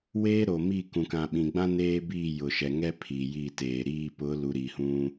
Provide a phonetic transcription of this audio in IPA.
w eː˦ ɾ o˨ m i˦˨ k ũ˨ k ã˨ ɓ ĩ˨ ɡ͡b ã˦ n eː˦ b iː˦˨ j ʊ˨ ʃ ɛ˨ ŋ ɛ˦ pʰ i˨ j i˦˨ t eː˨ ɾ iː˦˨ p ʊ˨˦ l u˨ ɾ i˨ h ũ˦

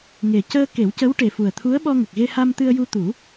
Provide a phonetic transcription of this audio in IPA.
ŋ e˨˩ c əː˧ k e˨˩˦ w c ə˧˥ w ʈ e˨˩ f u˨˩ ə̯ t̪ʰ u˧˥ ə̯ ɓ ɔ˧ ŋ ə˨˩ k̚ ɣ e˧ h a˧ m t̪ ɨ˧ ə̯ j u˧ t̪ u˨˩˦

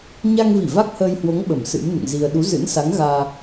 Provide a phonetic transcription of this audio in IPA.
ɲ a˧ ŋ v i˧˩ v a˦˥ k̚ h əː˧ j h w o˨˦ ŋ ɓ ə˧˩ m s ɨ̰˧˥ m n ɨ̰˧˨ ŋ z i˧ ə̯ ɗ u˨˦ z ɨ̰˧˥ n s a˨˦ ŋ ɣ aː˧

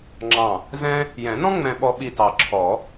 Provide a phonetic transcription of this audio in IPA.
ŋ͡ǁ ɑ̃˧˩ | z ɛ̃˥ | j ɛ̃˨˩˦ n ɔ̃˥ ŋ͡m ɛ̃˧ ɓ ɔ˧ ɓ i˧˩ t ɑ˨˩˦ ǁʰ ɔ˨˩˦

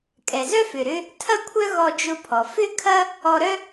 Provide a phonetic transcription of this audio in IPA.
kʼ ɛ˩ z œ˥ f ʏ˩ ɾ ʏ˥ | tʰ ɐ˥ kʷʰ œ˥ ɣ ɔ˧ d͡ʒ ʊ˧ pʰ ɔ˩ f ʏ˥ kʰ ɐ˥ | ɔ˧ ɾ œ˥

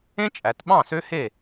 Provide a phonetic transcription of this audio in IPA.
ẽ˥ t͡ʃʼ æ˩˧ t ɓ ɑ̃˥˩ s ø˥ h e˥˩

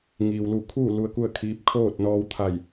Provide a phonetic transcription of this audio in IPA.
ŋ iː˩ w l u˧˩ kʰ uː˥˨ l u˧ ə̯ k u˥˨ ə̯ kʰ iː˧˥ p̚ kʰ oː˥˨ t̚ n ɔː˧ w t̪ʰ a˧˩ j

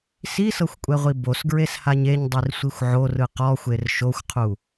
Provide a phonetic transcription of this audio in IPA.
s i s ɤ xʷ kʷʼ ɛ ʁʷ i b o s ɡ ɹ e s h a ɲ e ɲ dˤ i r sʷ i xʷ ʕ o r ɯ q ɔ xʷ e r ʃ o xʷ qʰ u

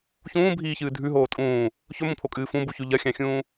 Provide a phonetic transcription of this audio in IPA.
ç ũː bʱ iː ç ɨː dʱ ʉ ɦ oː tʼ ũː | ç ɵ m ũ pʰ o kʼ ɨː f ũ b u ç ʉ ʎ ɐ xʲ ã xʲ ũː

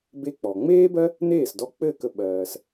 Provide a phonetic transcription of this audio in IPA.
b e˧ k͡p ɔ˩ ŋ͡m eː˥ b ɜ˥ | n eː˥˩ s d ɔ˧ k͡p ɘ˥˩ k ə˧ ɓ ɜː˩ s

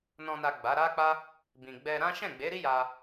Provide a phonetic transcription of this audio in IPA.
n ɔ̃˨ n a˨ ɡ͡b a˨˦ ɾ a˦ k͡p a˦ | b ĩ˨ ɡ͡b ɛ˧ ɾ ã˦ ʃ ɛ̃˦˨ ɡ͡b e˨˦ ɾ i˦ j a˧

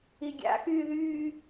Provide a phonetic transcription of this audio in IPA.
i ɡʲ a̰ x yː ð yː

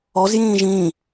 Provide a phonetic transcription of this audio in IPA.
ɔ z j ĩː ʒ ĩː

